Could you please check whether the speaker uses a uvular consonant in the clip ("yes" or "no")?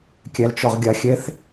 yes